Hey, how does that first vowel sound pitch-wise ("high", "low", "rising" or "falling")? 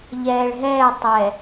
low